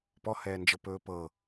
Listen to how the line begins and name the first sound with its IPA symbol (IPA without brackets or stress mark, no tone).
p